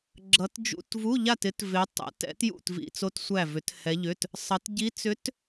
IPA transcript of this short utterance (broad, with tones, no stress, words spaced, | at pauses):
ɡ͡ǁʌ˧˥t d͡ʒṵ˧˥˧tvu˧˥˧ʎa˥˨tɪ˧˥t vɪ˧˥ tˤɛ̰˧˥tɛ̰˧˥t jṵ˥˨tvḭ˧˥˧t͡so˧˥t sʷæ˥˨vʏ˧˥thɛ˧˥ʎʏ˧˥˧t | sˤʌ˧˥t ɟi˧˥t͡sʏ˧˥t